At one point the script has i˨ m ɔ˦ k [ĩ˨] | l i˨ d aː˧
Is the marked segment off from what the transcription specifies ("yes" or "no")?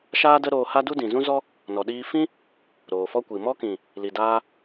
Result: no